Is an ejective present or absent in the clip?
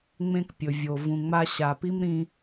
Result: absent